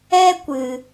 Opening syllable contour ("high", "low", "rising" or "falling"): high